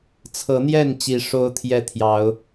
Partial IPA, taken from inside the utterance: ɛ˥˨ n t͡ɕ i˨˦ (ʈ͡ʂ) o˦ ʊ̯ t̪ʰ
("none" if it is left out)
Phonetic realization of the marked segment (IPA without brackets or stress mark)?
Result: ʂ